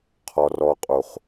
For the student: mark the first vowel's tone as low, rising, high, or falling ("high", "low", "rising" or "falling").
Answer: low